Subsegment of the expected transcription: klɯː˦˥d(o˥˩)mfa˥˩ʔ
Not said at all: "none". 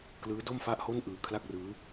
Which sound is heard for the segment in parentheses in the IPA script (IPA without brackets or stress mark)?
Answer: o˥˩